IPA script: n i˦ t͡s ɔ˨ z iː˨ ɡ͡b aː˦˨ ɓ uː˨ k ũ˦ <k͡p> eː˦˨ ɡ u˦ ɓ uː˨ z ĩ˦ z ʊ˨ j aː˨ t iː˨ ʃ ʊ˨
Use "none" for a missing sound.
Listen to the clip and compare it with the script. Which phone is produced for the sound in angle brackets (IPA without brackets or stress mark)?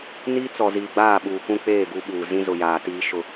k͡p